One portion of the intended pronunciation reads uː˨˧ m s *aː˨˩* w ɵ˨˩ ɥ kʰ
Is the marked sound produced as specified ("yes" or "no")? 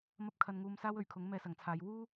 no